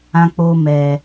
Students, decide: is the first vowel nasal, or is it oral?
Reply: nasal